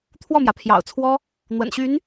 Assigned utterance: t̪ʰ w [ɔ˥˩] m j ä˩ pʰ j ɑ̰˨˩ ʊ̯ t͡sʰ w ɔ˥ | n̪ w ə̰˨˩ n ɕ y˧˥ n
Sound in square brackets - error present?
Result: no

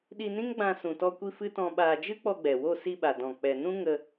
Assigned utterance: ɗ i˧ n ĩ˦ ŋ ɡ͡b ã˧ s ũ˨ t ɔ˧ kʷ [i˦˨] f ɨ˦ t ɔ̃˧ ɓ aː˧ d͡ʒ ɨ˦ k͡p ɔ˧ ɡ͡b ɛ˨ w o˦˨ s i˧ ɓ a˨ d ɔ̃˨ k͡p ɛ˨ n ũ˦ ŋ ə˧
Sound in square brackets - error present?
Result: yes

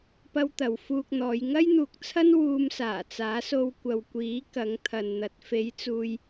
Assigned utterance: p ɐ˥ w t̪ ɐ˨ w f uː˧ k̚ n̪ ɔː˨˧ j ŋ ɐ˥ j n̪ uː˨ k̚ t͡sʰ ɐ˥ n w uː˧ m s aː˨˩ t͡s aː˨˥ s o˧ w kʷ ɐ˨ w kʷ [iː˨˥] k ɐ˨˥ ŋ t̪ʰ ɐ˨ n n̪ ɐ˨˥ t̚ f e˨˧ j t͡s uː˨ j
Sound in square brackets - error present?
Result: no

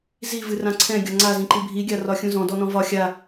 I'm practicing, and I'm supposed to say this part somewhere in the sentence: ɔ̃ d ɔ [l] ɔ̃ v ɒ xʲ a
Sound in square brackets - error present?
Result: yes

